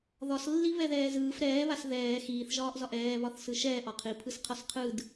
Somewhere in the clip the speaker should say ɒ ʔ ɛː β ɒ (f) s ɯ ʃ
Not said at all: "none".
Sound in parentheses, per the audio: θ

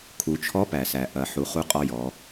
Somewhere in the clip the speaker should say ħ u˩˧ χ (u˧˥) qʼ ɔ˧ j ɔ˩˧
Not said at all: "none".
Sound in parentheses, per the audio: u˧˥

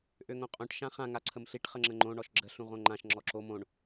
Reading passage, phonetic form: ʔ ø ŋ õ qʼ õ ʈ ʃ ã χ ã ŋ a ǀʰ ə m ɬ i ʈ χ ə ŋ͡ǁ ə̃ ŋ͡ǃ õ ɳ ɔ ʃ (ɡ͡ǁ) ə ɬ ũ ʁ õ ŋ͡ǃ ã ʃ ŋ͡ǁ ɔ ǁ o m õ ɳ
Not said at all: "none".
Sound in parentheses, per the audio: ɡ͡ǁ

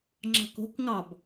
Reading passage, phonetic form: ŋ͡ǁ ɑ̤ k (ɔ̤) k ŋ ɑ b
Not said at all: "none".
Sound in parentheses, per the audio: o̤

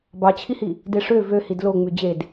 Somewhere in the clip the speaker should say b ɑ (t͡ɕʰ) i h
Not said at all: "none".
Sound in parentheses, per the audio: t͡ɕʰ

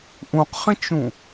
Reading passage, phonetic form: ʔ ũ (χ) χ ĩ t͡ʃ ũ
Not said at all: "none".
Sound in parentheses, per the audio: q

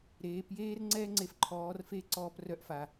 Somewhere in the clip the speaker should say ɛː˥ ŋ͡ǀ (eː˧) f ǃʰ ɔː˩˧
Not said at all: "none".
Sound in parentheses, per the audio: e˧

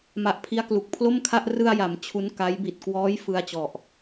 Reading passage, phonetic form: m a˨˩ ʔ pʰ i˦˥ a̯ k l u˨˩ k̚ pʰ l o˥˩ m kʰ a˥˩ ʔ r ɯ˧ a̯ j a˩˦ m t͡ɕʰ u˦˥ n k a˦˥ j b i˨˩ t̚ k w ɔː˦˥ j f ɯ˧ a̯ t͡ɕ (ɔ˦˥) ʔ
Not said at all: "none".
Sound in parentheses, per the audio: ɔ˨˩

